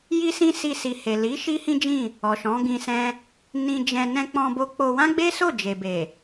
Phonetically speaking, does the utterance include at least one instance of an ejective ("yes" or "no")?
no